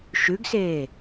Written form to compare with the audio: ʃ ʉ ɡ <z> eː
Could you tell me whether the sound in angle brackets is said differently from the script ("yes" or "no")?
yes